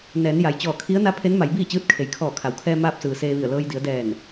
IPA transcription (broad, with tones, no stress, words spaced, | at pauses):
nɛː˩˧nja˩j t͡ɕɔː˧˩kʰi˧˥ə̯ na˧˥pʰe˧˥nma˩˧j biː˥˨t͡ɕɯː˧˥t̚kʰe˩j kʰɔː˧˩kʰa˩˧wkʰɛː˧ maː˧p̚sɯː˩ seː˧ʋi˧˩ə̯ lɤː˧jdi˩˧ə̯ dɛː˧˩n